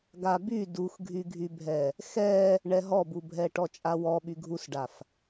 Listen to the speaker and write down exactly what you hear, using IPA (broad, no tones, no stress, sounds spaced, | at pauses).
ɡ a b y d u x ɡʱ y ɡʱ y bʱ ɛ | x ɛ | ɳ ɛ ɦ ɔ b u bʱ ɛ ʈ ɔ t͡ʃʼ a w ɔ ɓ y ɡʱ u s ɖ a f